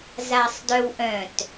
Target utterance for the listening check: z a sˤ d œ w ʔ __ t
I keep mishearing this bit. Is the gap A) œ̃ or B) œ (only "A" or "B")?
A